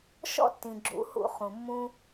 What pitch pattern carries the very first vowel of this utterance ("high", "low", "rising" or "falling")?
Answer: high